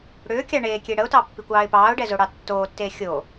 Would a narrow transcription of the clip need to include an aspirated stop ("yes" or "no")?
no